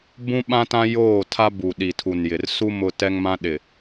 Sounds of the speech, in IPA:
bũ˦ɓã˦ tã˦joː˦˨tʰa˦ bu˨ɗi˨tʰu˨n jɪ˨rsu˦ mʊ˦tɛ˦ŋmã˦ɗɪ˨

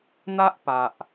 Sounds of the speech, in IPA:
n̪a˦ʔpa˨ʔ

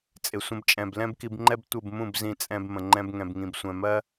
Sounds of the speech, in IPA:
t͡sʼɪ˨sʷə̃˧bt͡ʃʼɛ̃˨b lɛ̃˦bki˧bŋ͡ǃɛ˦b tʷə˦˨bmũ˦˨bzĩ˧t͡sʼɛ̃˧b mə̃˨ŋ͡ǃɛ̃˧bŋɛ̃˨bŋĩ˨b sʷɛ̃˨mɜ˦

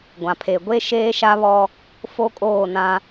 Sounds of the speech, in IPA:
ɡʷã˨pʰe˨ɡʷe˦ ʃeː˦ʃa˦βɔ˦ | fo˦kʼoː˦˨nã˦

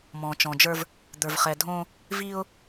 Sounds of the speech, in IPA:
mɔ̃˨t͡ʃɔ̃˨d͡ʒə˞˦v | d̪ə˞˨vχɛ˨dʱõ˦ | vi˦ʊ̯

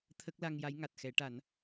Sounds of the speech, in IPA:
t̪ʰə˦˥k̚la˧ŋja˧˥j ŋa˨˩t̚xɛ˨˩˦ʈa˨˩˦n

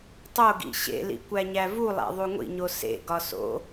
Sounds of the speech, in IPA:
tˤoɡḭ ɕḛlḭ kʷæɲævulˠæ̰ ðˤuŋʷḭɲo sḛɡɒ so̰

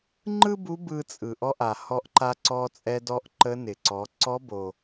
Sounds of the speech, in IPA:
ŋ͡ǃɯ˥bu˧˥ bɯ˧t͡sʼɯ˩ʔɔ˧ʔa˩ hɔ˧ʔǃa˧ ǀɔ˧t͡sʼɛ˧dɔ˧˥ʔ ǃə˧˥nɪ˩ǀɔ˩˧ ǀɔ˧˥bo˩

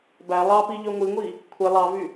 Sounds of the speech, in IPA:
bæ lˠɑpi ʎøŋʷiŋʷi | kʷʰe lˠɑvy

